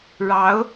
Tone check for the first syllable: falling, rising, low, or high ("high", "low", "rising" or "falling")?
rising